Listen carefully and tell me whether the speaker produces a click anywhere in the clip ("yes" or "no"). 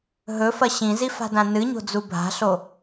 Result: no